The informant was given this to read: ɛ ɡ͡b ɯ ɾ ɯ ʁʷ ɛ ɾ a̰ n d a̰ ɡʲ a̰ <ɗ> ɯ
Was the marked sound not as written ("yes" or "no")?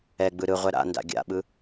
yes